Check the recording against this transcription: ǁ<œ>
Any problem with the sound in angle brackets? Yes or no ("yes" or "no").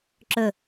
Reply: yes